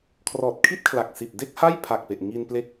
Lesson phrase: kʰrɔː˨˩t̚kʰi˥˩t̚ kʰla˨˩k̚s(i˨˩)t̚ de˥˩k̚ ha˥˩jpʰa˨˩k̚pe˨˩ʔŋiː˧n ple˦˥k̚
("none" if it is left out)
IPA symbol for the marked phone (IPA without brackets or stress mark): i˨˩